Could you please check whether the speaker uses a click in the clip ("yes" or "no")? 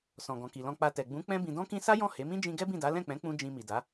no